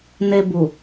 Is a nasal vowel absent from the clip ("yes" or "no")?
yes